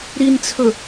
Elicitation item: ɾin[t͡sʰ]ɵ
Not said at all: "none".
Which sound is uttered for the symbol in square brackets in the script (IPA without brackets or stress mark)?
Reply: t͡sʰ